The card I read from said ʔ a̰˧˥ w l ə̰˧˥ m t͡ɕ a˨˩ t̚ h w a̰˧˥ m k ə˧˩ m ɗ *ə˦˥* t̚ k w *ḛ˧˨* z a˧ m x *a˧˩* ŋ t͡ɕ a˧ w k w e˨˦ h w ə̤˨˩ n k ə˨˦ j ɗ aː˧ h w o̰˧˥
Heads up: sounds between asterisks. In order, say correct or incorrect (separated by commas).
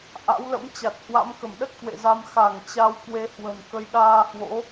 correct, correct, correct